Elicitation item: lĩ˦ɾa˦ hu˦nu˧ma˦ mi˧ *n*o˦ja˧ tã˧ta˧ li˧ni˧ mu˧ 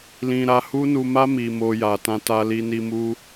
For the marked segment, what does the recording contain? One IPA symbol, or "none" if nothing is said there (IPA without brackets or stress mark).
m